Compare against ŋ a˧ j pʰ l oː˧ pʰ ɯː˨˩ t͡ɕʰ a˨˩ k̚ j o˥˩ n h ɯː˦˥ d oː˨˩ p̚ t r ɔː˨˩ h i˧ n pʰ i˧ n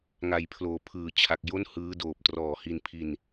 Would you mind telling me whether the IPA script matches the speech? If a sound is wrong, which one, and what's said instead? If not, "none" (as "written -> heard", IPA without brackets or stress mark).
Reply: none